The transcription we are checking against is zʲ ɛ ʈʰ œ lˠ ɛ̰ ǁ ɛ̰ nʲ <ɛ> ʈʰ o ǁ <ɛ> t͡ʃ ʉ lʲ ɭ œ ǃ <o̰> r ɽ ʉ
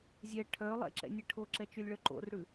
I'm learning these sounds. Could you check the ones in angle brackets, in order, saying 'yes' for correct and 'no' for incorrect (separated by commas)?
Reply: yes, yes, yes